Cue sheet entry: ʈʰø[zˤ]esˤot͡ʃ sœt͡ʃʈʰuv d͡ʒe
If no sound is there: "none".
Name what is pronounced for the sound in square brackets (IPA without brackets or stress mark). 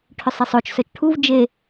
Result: sˤ